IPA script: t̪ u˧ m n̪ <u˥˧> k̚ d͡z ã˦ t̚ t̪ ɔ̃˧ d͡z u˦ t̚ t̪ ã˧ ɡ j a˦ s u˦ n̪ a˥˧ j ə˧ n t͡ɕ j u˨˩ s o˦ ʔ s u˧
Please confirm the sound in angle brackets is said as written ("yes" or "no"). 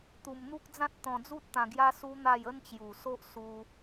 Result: no